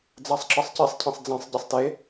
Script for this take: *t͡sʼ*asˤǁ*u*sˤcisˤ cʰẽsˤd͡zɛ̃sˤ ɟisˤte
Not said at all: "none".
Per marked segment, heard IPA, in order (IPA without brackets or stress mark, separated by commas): d͡z, ɯ